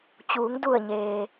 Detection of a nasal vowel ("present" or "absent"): absent